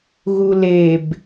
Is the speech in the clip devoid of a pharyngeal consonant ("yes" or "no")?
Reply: yes